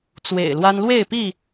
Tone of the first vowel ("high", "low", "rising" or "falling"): low